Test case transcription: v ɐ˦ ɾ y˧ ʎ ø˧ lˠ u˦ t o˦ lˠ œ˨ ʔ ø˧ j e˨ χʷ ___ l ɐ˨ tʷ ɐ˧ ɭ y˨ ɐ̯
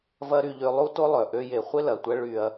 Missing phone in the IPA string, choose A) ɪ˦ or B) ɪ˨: A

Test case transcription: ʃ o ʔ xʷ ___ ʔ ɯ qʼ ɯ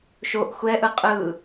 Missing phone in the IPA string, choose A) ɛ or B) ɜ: A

